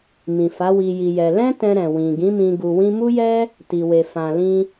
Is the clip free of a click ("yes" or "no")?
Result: yes